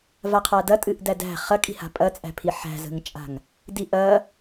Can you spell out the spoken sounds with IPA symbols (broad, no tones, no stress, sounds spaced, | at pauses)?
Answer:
v a qʰ a d ɐ tʼ ɨ ʔ d æ d æ̤ χ ɐ kʼ i̤ h a̤ pʼ ɐ t͡sʼ æ̤ pʰ i ħ æ̤ z ə̤ ŋ t͡ʃʼ a̤ ŋ | d i ʔ ɐ